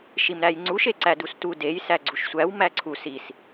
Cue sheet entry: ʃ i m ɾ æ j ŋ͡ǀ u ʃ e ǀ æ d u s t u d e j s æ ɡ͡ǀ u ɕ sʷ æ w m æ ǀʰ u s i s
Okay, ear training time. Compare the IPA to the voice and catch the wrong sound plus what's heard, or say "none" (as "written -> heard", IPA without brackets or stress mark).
ɕ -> ʃ